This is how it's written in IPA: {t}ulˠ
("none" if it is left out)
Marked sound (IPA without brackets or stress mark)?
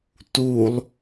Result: t